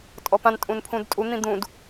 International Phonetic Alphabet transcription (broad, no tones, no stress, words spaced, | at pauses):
tʼɔpãn tʼũnpʰũdtʼu n̪ĩd̪ũd